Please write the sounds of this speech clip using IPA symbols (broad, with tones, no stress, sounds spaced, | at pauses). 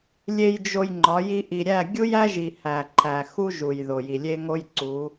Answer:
lʲ e˨ j d͡ʒ o˨ j ŋ͡ǃ ɒ˨˦ j i˦ ʔ i˨ ɾʲ æ˦˨ ɡʲ u˦ j æ˦ ʒ i˨ h æ˨ ǃʰ æ˨ x u˦ ʒ u˨ j ð o˨ j i˨ lʲ e˦ ŋ o˦ j ǀ u˨˦